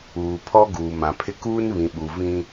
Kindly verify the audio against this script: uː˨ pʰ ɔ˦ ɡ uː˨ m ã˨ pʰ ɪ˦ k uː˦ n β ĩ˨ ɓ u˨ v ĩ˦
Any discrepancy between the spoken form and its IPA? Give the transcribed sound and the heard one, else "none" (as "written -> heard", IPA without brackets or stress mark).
none